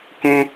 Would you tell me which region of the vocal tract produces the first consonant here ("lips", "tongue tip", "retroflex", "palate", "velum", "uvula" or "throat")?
velum